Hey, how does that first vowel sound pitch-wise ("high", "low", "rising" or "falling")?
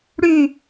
falling